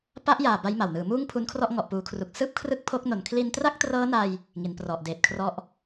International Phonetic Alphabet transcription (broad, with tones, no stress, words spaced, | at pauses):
pa˦˥ʔjaː˨˩ ba˦˥jma˨˩wnɯː˩˦ muː˥˩ŋpʰu˦˥nkʰrɔ˥˩ʔ ŋɔ˨˩ʔpuː˩˦kʰru˨˩k̚ sɯː˥˩p̚kʰrɯ˥˩k̚ pʰo˦˥k̚no˨˩n kʰli˧ntra˥˩k̚trɤː˦˥na˧j | ŋi˩˦nprɔ˨˩ʔdeː˨˩t̚kʰrɔ˦˥ʔ